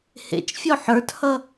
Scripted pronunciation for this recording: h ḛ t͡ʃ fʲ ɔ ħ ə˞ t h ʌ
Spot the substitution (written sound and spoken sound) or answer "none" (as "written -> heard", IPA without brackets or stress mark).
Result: none